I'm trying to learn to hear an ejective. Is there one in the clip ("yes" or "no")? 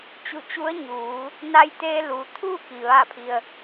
no